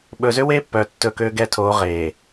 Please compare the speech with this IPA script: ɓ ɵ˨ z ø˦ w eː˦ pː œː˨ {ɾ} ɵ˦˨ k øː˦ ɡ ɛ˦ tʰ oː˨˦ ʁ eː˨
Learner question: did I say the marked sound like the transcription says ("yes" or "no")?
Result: no